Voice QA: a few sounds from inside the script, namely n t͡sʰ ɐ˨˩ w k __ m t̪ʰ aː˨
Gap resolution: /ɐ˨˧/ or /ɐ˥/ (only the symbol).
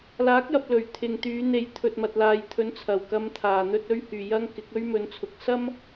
ɐ˨˧